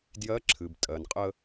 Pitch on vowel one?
rising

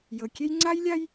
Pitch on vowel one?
low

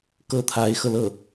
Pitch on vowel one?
high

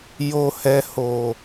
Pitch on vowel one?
low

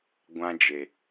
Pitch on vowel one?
high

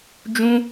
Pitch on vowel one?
high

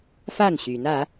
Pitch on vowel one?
falling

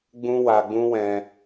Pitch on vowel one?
high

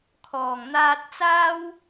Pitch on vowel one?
low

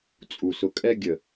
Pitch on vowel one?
low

